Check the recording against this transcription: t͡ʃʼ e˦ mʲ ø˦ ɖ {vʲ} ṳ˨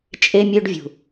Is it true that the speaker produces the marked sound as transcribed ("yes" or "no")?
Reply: yes